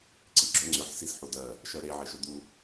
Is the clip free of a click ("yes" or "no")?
no